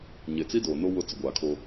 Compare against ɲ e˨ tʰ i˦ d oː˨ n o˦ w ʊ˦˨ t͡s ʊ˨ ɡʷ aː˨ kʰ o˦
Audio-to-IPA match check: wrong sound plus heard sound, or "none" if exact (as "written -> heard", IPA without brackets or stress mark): tʰ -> t͡s